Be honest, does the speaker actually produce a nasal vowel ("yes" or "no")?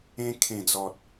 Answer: yes